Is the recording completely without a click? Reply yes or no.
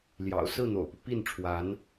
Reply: yes